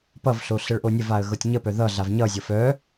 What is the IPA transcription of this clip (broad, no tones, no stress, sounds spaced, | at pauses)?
p ʌ v ɬ o ɬ ə ɭ ʔ o nʲ ə v a ə̯ ɣ ɤ tʲ ɲ ə p œ ð ʌ ɮ a v ɲ ʌ zʲ ɤ f œ